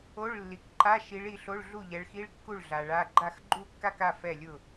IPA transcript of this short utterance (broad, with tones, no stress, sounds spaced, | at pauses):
o˧˥˧ ɭ lː i˨ k ǃ a˧˥˧ ʃ i˨˥ ɭ i˨˥ ɬ o˧˥˧ ɭ ɮ u˥˩ ʎ ɛ˨˥ ɭ x i˧˥˧ ɭ kː u˥˩ ɭ ɮ a˨ ɭ a˧˥˧ ɡ͡ǃ a˥˩ x ɡ͡ǃ u˥˧ kː a˥˧ k a˥˩ f ɛ˥˩ lʲ ʊ˥˩